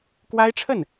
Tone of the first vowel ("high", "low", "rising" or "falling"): high